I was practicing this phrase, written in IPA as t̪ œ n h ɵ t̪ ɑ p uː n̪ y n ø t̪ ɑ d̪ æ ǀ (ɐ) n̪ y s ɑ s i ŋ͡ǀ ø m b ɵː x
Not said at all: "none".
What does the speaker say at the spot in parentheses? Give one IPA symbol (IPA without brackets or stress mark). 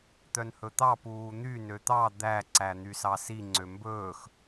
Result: æ